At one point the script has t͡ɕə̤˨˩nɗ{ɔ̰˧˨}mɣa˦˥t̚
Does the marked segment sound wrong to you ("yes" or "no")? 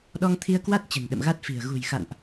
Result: yes